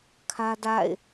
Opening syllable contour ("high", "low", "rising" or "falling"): high